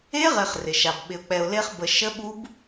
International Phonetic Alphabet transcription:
e˦˥ʁe˨χ rɪ˨ʃa˨b ɓɪ˨ʊ̯k͡pɛ˨ʊ̯le˦˥χ bə˨ʃə˦˥ɓu˦˥b

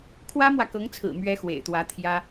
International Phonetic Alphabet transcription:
kʰwä˥mwä˨kɤ˧˥ŋt͡sʰɹ̩˨˩ mɥɛ˥xwḛ˨˩ɪ̯t̪wä˧˥ t̪ʰjä˥

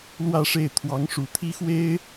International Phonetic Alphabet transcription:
lwä˥˧ʂe˥˩ɪ̯ t̪ʰwɑ˧˥ŋʂu˨˩t̪ʰi˥xwe˥ɪ̯

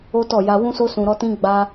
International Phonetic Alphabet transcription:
o˦tɔ˦˨ ja˧wũ˦so˦ sũ˧ɾɔ˦tĩ˦ ɡ͡ba˦

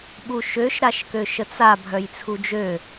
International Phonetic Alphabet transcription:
ɓuʃøʃ ɾaʃkøʃət͡sa bʱœjt͡sʰud͡ʒø

